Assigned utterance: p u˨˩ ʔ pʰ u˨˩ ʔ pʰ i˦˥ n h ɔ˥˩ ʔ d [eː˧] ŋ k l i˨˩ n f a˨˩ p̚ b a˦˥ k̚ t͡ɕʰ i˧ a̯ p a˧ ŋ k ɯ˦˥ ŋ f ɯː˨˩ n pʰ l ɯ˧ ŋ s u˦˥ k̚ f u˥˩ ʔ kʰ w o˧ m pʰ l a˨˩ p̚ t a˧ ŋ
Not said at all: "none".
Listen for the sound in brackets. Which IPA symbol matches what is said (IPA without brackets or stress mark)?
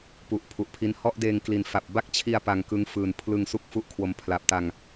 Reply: eː˧